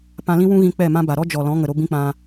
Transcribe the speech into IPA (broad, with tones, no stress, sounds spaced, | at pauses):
p ã˧ l ĩ˦ w ũ˦ ɣ ĩ˧ k͡p ɛ˦˨ m ã˦ b a˨ ɾ ɔ˦ d͡ʒ ɔ˨ l ɔ̃˨˦ ŋ ə˨ ɾ o˦ b ĩ˦ k͡p ã˧